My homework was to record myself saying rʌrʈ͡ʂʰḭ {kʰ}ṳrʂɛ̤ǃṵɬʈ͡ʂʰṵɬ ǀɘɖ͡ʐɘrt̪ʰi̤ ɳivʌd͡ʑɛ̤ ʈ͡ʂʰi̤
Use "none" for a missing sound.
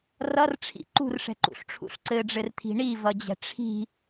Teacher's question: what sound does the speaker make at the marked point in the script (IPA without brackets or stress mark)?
ǃ